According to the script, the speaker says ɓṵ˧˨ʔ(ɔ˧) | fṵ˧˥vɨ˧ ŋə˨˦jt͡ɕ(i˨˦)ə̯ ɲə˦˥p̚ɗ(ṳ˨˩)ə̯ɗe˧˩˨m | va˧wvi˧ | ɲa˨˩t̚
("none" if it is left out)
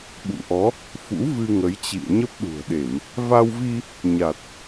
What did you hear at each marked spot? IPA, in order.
ɔ˨˦, ḭ˧˨, ṳ˨˩

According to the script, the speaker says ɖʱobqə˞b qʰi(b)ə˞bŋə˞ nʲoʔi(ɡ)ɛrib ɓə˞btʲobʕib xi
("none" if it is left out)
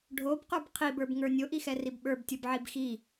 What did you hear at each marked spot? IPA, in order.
b, x

